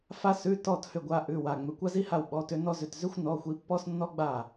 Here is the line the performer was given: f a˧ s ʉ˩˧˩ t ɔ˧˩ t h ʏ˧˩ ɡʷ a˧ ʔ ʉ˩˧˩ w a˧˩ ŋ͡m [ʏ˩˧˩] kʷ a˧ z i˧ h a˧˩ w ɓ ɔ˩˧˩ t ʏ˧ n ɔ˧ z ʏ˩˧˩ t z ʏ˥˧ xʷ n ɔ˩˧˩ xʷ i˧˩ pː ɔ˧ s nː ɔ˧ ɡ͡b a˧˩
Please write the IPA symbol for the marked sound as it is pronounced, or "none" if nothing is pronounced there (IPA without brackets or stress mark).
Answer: ʏ˩˧˩